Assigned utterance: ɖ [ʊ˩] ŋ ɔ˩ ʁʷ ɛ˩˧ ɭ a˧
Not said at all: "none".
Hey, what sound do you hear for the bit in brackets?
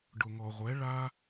ʊ˩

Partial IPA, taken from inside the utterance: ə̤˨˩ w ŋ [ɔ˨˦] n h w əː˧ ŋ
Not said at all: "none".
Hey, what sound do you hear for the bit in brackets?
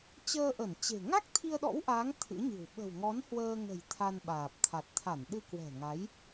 ɔ˨˦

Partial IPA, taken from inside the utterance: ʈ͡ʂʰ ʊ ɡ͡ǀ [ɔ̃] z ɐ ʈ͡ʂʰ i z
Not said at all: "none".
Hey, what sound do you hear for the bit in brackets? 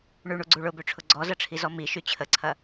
ɔ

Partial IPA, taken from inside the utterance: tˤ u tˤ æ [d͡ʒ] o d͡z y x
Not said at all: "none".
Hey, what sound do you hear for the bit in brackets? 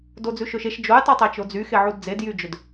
t͡ʃ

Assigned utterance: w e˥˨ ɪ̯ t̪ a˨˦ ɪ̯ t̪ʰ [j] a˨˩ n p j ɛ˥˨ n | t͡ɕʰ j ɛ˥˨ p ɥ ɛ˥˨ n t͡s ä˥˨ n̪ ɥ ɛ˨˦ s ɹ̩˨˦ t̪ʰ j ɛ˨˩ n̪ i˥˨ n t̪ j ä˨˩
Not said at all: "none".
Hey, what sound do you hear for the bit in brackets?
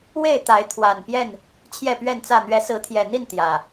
w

